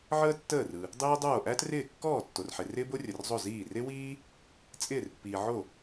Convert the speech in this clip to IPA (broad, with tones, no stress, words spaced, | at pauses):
ʕəː˥tːəː˥˩rɯ˨ | dˤiː˥dˤoː˥˩ ʔæ˥trɪː˥˩ kːɔː˥˩tːo˨rħɪ˨ rɪː˥bo˥rʲə˨rzˤo˥˩ ziː˥˩ rɪ˥wiː˥ | t͡sʼɪː˥˩rpːiː˨ʕo˥˩